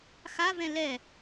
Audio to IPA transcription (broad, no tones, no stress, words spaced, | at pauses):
xavɛ̃ lɛ